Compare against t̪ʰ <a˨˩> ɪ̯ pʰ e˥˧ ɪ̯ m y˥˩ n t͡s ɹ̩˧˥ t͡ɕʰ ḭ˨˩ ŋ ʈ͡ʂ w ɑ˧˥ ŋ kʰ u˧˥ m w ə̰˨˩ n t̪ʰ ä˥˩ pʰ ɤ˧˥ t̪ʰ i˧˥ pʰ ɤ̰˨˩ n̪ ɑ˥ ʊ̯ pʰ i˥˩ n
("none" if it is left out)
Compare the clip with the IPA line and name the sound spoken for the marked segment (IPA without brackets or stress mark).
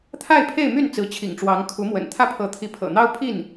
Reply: a˥˧